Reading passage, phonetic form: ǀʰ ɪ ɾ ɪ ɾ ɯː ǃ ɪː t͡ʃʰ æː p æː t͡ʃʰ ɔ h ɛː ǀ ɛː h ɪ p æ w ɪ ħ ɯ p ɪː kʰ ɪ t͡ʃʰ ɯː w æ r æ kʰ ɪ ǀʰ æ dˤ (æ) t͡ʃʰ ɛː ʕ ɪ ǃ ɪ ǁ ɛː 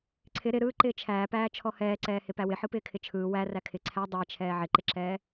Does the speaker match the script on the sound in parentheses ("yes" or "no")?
yes